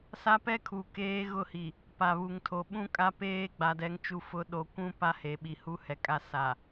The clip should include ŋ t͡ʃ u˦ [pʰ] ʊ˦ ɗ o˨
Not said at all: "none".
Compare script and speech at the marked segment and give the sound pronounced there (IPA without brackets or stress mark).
f